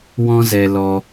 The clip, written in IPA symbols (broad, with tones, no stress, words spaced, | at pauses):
wɔ̃˦zɛ˧lɔ˧